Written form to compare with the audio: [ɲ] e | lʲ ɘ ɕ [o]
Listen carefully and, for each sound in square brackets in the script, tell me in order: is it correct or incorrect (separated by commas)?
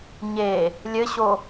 correct, correct